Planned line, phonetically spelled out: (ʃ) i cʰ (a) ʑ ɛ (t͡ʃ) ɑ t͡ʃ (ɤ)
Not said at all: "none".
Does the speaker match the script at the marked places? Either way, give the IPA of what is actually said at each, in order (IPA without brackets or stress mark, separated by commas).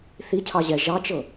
θ, ɑ, ʒ, ɤ